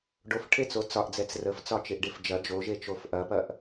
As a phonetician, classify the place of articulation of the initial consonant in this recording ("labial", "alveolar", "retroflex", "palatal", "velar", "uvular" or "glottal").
retroflex